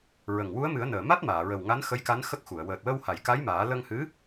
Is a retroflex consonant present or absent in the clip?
absent